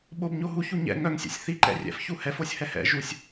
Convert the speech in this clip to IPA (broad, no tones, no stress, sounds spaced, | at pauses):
ɓ o b ɲ o ɦ u ç u ɲ ɛ̰ ŋ œ ŋ sʲ ɛ̰ sʲ θ i ǃ ɛ̰ rʲ ɛ̰ f ç u h ɛ f o sʲ h ɛ h ɛ̰ ʒ u sʲ